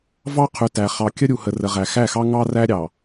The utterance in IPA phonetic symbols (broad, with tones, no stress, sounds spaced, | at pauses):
v ɑ˦ qʰ ʉ˨ t æ˨ χ ɑ˨ kʲ ə˦ ɾʲ u˨ h ə˨ r ə˨ ʁ æ˨ x æ˦˨ x ɑ˦ ŋ ɑ˦ r æ˦ ɾʲ ɑ˨